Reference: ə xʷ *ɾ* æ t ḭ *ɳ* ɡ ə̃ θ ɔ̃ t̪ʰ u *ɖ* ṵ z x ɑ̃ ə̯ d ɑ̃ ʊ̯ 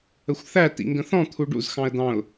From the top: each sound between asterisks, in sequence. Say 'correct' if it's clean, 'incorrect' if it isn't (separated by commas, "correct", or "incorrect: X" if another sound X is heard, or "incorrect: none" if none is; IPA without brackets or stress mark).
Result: incorrect: θ, incorrect: ŋ, correct